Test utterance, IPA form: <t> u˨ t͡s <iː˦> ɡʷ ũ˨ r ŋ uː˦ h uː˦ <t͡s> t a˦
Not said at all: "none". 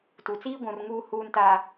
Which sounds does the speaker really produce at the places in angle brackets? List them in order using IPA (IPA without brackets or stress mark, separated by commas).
t, iː˦, n